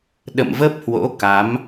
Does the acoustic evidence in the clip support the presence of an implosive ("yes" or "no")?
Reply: yes